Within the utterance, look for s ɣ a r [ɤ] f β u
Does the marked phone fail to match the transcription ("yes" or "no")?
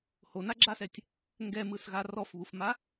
yes